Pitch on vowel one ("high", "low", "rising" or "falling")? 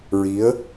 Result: rising